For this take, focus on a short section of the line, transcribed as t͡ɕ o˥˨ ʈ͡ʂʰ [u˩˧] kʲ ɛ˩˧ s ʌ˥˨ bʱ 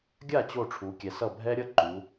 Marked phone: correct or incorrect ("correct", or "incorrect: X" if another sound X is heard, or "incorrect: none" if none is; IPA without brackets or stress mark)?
correct